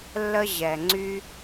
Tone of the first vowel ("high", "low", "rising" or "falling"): high